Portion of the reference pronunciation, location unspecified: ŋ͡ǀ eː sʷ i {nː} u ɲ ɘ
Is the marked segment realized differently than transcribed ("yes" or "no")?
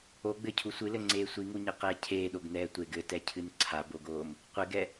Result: yes